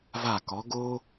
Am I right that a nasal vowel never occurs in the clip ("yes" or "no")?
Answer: yes